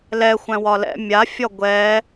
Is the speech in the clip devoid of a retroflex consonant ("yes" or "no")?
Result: yes